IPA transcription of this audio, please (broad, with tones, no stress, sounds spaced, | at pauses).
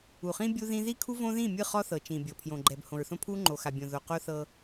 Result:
u˨ χ ĩ˦ bʲ u˦ ð ĩ˦ ð i˦ kʰ u˦ v õ˦ ð ĩ˦˨ mʲ ɯ˦˨ χ ɔ˦ θ ɤ˨ t͡ʃ ĩ˨ bʲ ɤ˨ pʰ j õ˨ ɡ͡ǃ ɛ˨ b h õ˨ ɹ θ õ˦ pʰ u˦ ŋ͡ǃ o˨ x a˨ bʲ õ˨ ð o˨ q o˦ θ ɤ˦